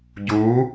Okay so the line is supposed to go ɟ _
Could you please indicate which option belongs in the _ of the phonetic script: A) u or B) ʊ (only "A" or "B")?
A